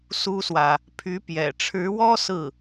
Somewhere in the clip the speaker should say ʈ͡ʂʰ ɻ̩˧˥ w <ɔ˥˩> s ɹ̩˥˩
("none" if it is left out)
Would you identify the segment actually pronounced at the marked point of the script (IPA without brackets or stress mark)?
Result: ɔ˥